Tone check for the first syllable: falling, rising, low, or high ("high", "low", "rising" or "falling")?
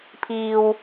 low